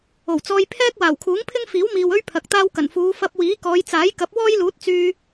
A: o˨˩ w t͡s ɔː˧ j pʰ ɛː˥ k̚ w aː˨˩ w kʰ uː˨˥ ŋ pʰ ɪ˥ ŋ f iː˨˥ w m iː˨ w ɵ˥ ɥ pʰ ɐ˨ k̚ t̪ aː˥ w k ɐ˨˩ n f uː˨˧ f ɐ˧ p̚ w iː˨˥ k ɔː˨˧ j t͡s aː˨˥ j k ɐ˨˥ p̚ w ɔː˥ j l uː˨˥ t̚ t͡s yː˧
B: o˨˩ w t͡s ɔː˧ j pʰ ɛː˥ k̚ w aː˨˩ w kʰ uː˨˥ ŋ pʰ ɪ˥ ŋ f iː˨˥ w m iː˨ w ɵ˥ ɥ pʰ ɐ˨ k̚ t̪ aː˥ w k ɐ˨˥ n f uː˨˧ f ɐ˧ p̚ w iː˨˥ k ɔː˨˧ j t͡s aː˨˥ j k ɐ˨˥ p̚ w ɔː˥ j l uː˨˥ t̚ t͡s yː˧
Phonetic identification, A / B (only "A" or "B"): A